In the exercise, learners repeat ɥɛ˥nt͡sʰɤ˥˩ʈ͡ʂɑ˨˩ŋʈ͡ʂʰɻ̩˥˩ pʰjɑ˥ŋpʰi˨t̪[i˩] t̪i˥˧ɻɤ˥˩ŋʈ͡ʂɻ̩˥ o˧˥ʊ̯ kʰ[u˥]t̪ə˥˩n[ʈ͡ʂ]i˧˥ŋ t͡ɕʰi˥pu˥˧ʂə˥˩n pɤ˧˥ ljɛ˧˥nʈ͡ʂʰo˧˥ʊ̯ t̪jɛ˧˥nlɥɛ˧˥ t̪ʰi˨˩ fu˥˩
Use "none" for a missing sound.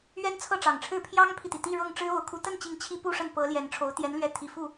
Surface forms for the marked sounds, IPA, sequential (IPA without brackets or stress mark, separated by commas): i˩, u˧˥, t͡ɕ